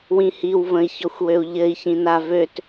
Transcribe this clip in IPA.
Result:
w ĩ h i w v ə̃ i̯ ç ɔ xʷ w ø u̯ ʎ ɘ i̯ ç ĩ n a v ø t

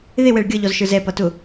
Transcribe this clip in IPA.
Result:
ð ɪ w ɛ ɭ ɡʲ ʌ ʎ ɔ z ʃ ə˞ z ɛ p ʌ t ʊ

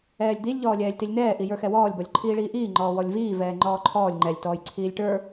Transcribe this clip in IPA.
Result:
ɛː lʲ d̪ i lʲ ʎ ɔː lʲ ɛː lʲ t i lʲ n̪ ɛː ʔ i j ə˞ x ɛ w ɔː lʲ b ɔ lʲ ǃʰ iː ɭ iː ʔ iː ŋ͡ǃ ɔː w ɔ lʲ v iː v ɛː ŋ͡ǃ ɔː ǃʰ ɔː lʲ ŋ͡ǃ ɛ lʲ t ɔː j ǀʰ iː lʲ ʈ ə˞

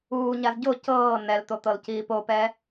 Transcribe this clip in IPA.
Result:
uː ɲ a z ɟ o c ɤː n ɛ l t̪ o t̪ ɤ l c iː p o p ɛ

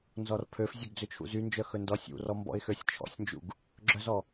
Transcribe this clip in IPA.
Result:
n z ɔ r pʰ ø f zʲ ø ɡ d͡z ø t͡ʃʰ ṵ z y n d͡ʒ œ x ɵ n d ɔ sʲ ṵ r ɔ m b ɔ̰ ɪ̯ x ø sʲ t͡ʃʰ ɔ̰ sʲ n d͡ʒ ṵ ɡ | ɡ͡ǁ œ z ɔ

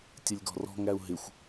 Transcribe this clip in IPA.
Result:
tʲ ə lʲ ɡ ɔ̤ r ɔ̤ ŋ æ u̯ ɦ ɪ xʷ

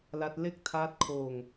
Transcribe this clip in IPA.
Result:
l a˦˥ t̚ l e˥˩ k̚ tʰ aː˦˥ t̚ kʰ oː˧ ŋ

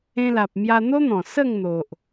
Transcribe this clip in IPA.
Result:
ẽ˧ l a˨ p̚ m j a˧ n̪ o˦ n̪ ɔ̃˨˩ s ə˥˧ ŋ n̪ o˨ ʔ

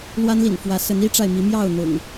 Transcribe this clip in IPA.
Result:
l w a˦ n l ḭ˨˩ n f w ä˨˦ s ə˨˦ n i˦ ʈ͡ʂ a˨ ɪ̯ m i˨˦ m j ɑ˥˨ ʊ̯ n̪ ʊ̰˨˩ ŋ

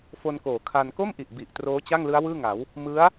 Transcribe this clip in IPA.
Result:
f o˧ n k oː˩˦ kʰ a˧ n k o˥˩ m ʔ i˨˩ ʔ b i˨˩ ʔ t r oː˦˥ t͡ɕ a˥˩ ŋ l ɯ˦˥ a̯ w ɯː˥˩ ŋ a˩˦ w | m ɯ˦˥ a̯

